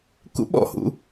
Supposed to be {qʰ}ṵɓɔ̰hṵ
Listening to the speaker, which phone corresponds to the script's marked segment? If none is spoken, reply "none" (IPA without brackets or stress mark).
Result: k